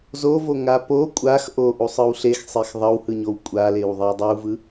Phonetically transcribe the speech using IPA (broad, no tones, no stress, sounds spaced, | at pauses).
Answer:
z o v o ŋ a p o kʷʼ a x ʔ o ʔ u sˤ ɯ w ɬ e x sˤ e x ðˤ ʌ w h ɯ ɲ o w kʷʼ a l e w ðˤ i w dˤ u v ɯ